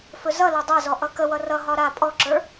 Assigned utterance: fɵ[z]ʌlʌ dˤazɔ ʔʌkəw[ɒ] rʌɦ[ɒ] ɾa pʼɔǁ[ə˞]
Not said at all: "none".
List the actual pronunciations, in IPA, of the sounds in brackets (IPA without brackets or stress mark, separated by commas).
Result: z, ʌ, ɒ, ə˞